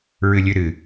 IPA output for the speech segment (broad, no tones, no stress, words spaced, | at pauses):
ɹɨlʲʉɾɨ